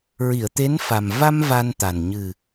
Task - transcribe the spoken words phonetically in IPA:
ɹi˨˩˨ə̯t̪e˧˥nfa˨˩m va˧m va˧nt̪a˨˩n ɲɨ˨˩

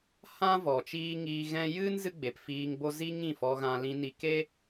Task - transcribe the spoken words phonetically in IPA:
hã˦vɔ˨ t͡ʃiː˧ ŋiː˧ ɣɛ̃˧jɨ˦n zɨ˦ɡ͡be˨pfiː˧ŋbo˦ zi˦ ŋĩ˦˨fɔ˧ɣã˧ lĩ˧ni˧ ke˦

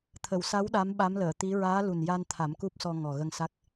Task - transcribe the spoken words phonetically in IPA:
t̪ʰə˨˩˨wsa˧˥w ɗa˧˥mɓa˧˥mləː˨˩˨t̪i˧˥ ɹaː˧˥lu˨˩nja˧nt̪ʰa˨˩˦m ku˦˥p̚sɔ˧ ŋɔ˨˩ɣə˧ŋ sa˦˥k̚

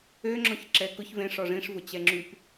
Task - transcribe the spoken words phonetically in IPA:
øŋ͡ǁɔ̃ç ǁɛkʊç vẽʂ ɔʐĩʂ vʊt͡ɕɛŋ͡ǁyp

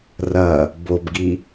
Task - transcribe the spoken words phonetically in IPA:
rɐ | bobɡi

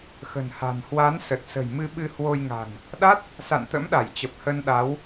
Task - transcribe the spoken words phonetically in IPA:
xə̤˨˩nha̤˨˩n hwa˨˦n sə˨˩t̚sə̤˨˩j mɨ˧ɓɨ˧hwo˧jŋa̤˨˩n | ɗa˦˥t̚ | sa̰˧˨nt̪ə̰˧˥mɗa˧˩jt͡ɕə˨˩p̚ hə˧nɗa˨˦w

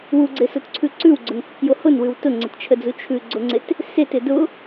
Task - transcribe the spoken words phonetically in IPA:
wuɡ͡ǀɪsotǀʰʉ ǀʉwɡ͡ǀʊnkɪkjo hʊnwʉw tʊŋ͡ǀɪtt͡ʃʰəd͡zu t͡ʃʰʉɡ͡ǀʊŋ͡ǀɪt | setɪ dʊ

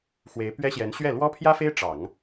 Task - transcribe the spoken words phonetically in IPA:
xwe˧˥ɪ̯pɥɛ˥ɕjɛ˧˥n ɕɥɛ˥˩ lwɔ˥pʰjä˥fe˥ɪ̯ ʈ͡ʂɑ˨˩˦ŋ

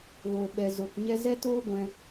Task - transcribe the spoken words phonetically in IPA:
ɣo˨ɓɛ˨zo˨kɲɛ˦ zɛ˦toː˦ ɡʷɛ̃˧

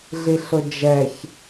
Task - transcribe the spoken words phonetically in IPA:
ɮiɬʊd͡ʒɛç

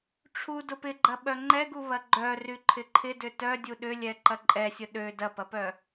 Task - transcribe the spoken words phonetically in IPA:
ʈ͡ʂʰu dʊpɪɡ͡ǃɐ ɓœŋ͡ǃɛɡu βɐɡ͡ǃœ ryǃʰɪǃʰɪdʏ tœdʲu ɗʏlʲɛ ǃɐǃʼɛsʲʊ ɗø dɐpɐpœ

